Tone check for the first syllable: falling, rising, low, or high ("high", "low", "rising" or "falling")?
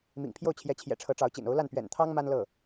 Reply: low